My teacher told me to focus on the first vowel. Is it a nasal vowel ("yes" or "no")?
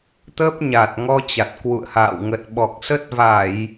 no